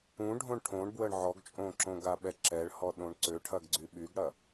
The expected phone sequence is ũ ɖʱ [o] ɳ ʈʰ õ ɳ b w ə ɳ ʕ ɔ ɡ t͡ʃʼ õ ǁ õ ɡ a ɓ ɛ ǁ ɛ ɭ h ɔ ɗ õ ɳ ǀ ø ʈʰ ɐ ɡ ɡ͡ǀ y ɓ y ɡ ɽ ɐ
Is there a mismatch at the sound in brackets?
yes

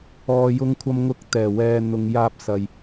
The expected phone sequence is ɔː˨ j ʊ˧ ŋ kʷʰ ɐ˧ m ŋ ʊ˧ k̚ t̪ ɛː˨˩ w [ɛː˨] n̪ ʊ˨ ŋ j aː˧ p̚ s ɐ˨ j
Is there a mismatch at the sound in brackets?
no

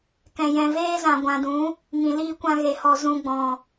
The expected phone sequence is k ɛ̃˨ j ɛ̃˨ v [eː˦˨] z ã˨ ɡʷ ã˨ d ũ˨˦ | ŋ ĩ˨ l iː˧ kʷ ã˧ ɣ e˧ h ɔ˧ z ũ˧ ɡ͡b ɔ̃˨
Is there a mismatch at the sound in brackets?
yes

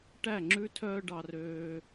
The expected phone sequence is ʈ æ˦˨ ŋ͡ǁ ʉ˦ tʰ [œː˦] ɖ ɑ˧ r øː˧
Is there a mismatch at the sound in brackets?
no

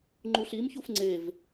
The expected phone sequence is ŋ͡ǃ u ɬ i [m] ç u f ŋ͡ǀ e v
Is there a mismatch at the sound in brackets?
no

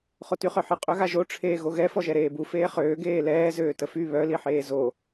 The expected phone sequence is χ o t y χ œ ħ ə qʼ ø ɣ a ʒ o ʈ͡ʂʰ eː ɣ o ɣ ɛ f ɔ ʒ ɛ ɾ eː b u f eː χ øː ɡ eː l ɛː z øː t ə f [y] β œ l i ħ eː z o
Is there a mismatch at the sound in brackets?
no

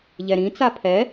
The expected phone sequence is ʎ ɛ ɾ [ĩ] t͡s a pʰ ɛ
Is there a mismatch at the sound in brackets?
no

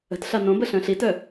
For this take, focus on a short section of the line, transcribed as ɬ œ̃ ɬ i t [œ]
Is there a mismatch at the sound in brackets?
no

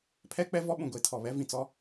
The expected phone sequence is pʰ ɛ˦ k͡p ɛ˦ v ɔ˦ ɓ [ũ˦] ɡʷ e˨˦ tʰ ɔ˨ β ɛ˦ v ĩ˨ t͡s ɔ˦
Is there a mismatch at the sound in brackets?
yes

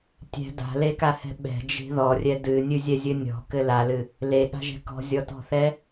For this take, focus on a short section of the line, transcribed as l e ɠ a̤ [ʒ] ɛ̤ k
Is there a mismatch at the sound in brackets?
no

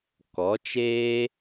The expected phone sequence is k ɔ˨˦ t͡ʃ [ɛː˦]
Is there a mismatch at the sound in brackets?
yes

